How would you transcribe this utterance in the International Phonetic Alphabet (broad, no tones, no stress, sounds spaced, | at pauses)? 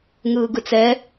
ŋ ɯː ɡ ɯ t͡s ɛ